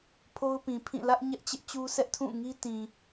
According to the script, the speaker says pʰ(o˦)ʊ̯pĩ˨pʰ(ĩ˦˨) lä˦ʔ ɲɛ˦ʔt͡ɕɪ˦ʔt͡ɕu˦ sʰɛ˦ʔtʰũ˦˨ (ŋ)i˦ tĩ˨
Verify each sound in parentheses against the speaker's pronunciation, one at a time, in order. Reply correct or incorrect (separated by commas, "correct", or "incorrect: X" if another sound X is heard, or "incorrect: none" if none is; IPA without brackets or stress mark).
correct, correct, correct